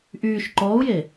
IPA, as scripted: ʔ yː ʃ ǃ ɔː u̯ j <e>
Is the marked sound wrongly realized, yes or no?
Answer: no